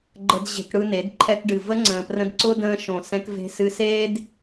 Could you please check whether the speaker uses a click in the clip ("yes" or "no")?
yes